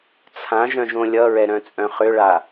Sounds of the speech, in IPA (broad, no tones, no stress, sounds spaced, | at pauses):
t͡sʰ ã ʒ œ̃ ʒ õ lʲ ʌ ɹ ɛ ɾ œ̃ t͡sʼ œ̃ χ ʏ ɭ a